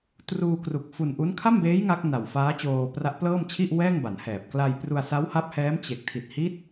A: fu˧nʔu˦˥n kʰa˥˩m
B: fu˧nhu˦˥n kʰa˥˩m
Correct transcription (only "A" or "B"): A